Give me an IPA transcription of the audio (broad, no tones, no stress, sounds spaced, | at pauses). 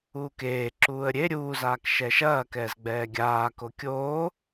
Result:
uː k eː ǁ uː ə̯ ɾʲ e ɾʲ uː z aː k ʃ ɛ ʃ ɐː k ɛː z ɡ͡b ɛː ɡʲ aː k o kʲ oː